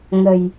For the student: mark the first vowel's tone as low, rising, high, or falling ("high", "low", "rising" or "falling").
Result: low